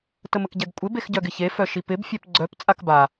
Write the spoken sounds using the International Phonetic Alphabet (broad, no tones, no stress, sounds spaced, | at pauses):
t ə m ə k ɟ ɛ ɡ kʷʼ ɪ b e x ɟ œ ɡ ɪ ç e f œ ʃ i p ɪ b fʲ ɛ p ɡ͡ǀ œ p t͡sʼ a k b a